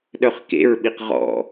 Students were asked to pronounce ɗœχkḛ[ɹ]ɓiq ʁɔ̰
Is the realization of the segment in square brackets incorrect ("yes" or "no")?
no